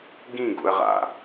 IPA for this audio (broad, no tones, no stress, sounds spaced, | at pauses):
ɡ ĩ ɡ ṵ ə̯ ʁ a̰